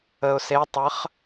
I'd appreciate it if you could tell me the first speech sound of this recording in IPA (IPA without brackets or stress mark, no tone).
ə